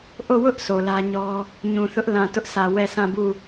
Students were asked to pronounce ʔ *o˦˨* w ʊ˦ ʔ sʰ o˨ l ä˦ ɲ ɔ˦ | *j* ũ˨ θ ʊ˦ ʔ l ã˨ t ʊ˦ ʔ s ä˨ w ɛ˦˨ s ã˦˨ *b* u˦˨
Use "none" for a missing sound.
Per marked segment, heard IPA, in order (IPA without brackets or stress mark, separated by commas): o˦˨, ɲ, b